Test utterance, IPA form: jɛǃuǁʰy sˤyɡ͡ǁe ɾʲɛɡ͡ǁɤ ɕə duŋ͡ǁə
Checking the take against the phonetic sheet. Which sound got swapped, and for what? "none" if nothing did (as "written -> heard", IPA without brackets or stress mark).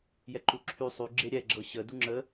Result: none